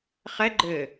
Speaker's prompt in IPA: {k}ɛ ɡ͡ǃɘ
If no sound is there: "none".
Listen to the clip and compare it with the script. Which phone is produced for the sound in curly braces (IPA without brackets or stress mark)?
χ